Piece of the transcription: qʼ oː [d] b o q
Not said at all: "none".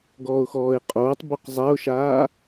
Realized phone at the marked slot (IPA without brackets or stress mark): tˤ